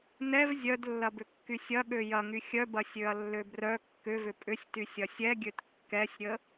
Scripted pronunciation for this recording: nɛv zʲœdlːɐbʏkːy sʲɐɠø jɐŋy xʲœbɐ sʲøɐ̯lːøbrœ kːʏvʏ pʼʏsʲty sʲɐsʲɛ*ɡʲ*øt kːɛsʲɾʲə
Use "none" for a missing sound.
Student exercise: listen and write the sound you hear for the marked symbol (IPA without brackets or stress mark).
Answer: ɡʲ